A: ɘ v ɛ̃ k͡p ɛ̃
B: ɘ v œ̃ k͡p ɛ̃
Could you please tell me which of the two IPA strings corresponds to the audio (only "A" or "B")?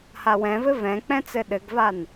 A